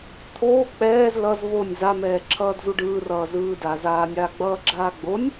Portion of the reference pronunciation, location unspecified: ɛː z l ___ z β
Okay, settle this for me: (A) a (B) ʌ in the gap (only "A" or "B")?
B